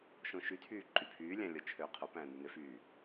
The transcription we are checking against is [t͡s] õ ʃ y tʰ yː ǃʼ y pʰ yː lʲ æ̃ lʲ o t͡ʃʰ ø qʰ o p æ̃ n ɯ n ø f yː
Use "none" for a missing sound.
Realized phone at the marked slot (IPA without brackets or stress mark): ʃ